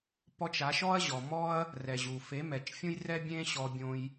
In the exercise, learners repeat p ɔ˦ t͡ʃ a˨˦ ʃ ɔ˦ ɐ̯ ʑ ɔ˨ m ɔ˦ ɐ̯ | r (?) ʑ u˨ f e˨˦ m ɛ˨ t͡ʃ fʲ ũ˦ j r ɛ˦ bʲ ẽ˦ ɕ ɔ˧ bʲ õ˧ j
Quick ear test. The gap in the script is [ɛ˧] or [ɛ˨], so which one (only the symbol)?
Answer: ɛ˨